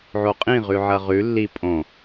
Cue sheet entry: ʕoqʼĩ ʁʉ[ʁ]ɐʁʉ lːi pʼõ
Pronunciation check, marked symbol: incorrect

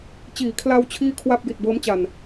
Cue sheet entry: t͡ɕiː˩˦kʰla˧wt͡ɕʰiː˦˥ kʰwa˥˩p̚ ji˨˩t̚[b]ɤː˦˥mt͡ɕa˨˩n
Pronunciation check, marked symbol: correct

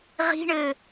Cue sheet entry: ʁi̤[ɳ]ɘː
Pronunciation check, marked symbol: correct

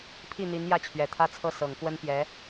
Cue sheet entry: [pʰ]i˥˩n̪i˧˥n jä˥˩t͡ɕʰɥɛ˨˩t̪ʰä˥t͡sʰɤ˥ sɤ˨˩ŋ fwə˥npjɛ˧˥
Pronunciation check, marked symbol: correct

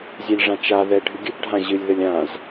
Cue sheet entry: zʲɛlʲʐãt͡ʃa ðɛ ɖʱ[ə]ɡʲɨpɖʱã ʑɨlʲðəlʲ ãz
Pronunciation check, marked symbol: incorrect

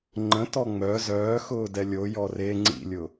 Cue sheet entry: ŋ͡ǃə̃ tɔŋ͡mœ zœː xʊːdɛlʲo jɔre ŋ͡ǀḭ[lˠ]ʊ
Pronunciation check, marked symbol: incorrect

